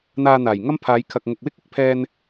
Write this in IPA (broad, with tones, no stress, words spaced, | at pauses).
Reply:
n̪aː˧n̪aː˨˩jŋɐ˥mpʰaː˨˧j kʰɐ˨k̚ŋʊ˨k̚wɪ˥k̚ ɪ˧k̚pʰɛː˧n